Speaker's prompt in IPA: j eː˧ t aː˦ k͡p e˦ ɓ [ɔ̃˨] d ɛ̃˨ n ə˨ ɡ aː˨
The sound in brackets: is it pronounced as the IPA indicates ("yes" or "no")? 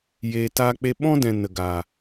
no